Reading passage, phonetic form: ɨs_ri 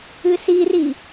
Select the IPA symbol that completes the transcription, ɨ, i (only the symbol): i